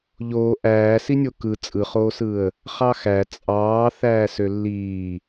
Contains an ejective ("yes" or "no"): yes